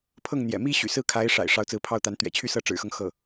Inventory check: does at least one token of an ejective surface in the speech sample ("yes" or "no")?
no